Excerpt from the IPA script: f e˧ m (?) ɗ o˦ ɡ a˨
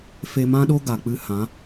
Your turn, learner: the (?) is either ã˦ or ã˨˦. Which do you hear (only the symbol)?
ã˦